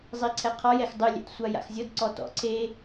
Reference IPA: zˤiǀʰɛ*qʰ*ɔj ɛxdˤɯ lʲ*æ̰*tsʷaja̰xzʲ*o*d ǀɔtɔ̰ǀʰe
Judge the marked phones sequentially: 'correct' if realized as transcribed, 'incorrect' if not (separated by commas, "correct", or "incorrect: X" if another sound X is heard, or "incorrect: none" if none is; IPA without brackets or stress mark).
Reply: correct, incorrect: ɛ̰, incorrect: ɤ